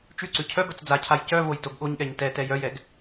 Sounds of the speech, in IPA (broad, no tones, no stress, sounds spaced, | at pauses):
t͡ʃ ʉ ǀ ʉ cʰ œ b œ t͡s d͡z a cʰ a j c œ v o j t o ɡ ɠ o ɲ ɠ ɛ ɲ t ɛ t ɛ j œ j ɛ ɡ